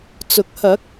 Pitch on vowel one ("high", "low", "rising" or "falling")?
rising